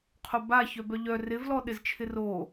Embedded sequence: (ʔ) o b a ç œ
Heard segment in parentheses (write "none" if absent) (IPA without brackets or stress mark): qʰ